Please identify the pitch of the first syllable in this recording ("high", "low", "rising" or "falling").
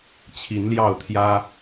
rising